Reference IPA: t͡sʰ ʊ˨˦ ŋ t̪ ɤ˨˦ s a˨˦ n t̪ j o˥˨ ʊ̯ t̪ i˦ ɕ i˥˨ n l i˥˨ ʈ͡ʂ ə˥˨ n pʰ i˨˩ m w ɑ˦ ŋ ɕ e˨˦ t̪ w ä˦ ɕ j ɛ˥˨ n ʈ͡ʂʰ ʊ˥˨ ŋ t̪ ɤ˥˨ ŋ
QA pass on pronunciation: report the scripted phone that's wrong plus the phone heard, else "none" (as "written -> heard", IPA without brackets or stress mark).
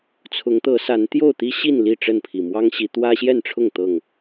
e˨˦ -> i˨˦